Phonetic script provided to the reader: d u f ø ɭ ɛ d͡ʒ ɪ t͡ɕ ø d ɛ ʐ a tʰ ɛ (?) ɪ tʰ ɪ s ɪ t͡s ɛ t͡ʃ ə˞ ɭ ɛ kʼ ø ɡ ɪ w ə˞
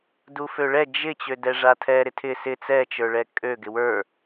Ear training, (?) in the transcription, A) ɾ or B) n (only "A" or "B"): A